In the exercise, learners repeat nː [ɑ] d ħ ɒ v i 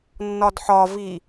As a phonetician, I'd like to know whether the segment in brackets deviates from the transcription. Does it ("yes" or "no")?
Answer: yes